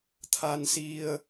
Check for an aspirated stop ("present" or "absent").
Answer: present